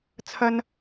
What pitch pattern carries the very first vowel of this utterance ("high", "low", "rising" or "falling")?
high